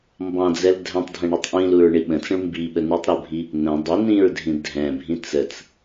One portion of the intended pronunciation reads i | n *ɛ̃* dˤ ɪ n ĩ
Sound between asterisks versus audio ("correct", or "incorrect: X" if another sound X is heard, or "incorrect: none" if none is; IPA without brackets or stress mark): incorrect: ə̃